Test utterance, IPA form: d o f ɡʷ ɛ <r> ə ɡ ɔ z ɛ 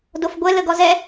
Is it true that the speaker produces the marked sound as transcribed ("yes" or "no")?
no